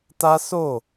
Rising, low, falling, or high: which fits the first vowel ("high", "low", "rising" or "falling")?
high